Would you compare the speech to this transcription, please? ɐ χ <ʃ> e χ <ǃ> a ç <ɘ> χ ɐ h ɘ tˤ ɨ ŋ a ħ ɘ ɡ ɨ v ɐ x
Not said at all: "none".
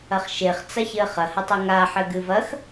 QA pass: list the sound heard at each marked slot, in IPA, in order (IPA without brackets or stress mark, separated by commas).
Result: ʃ, t͡s, ɘ